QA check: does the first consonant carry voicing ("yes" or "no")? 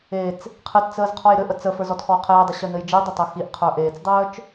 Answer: no